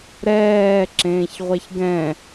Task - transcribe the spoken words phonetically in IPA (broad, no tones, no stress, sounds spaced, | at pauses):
ɾ ɛː ǁ ẽː ç ʁʷ ɛ ç ɡ ɛ̃